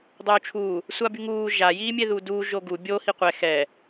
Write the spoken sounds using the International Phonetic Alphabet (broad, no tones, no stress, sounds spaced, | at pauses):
dˤ uː t͡ʃʰ uː | sʷ a b y ŋ uː ʒ a j iː mʲ e ð uː d uː ʒ o ɡ u bʲ o h i qʷ ɛ x ɛ